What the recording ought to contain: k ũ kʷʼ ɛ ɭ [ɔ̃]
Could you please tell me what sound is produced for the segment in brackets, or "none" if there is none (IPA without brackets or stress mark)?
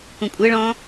ɔ̃